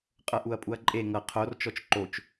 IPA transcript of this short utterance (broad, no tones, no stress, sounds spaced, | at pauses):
qʼ ɤ ʔ u ɐ̯ pʼ u ɐ̯ ǃʼ e ŋ ɤ qʰ o r t͡ʃ ɔ t͡ʃ ǃ o t͡ʃ